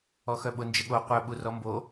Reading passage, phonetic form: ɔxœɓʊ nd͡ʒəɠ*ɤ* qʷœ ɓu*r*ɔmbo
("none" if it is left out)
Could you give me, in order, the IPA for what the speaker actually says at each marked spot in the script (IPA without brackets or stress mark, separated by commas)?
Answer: o, r